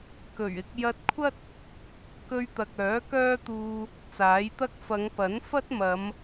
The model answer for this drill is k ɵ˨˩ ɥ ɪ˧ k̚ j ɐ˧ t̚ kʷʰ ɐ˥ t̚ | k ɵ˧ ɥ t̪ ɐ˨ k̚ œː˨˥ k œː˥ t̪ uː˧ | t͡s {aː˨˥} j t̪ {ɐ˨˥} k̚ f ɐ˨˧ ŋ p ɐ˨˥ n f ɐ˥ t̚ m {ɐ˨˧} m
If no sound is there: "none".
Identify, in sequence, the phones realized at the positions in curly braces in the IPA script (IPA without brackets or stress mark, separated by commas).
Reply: aː˨˥, ɐ˥, ɐ˨˧